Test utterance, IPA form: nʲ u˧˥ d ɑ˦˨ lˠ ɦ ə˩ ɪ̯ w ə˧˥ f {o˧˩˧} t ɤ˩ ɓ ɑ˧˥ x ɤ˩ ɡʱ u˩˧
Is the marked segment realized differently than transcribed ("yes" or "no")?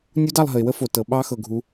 yes